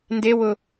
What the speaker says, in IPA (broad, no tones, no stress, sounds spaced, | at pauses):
n d e w ʊ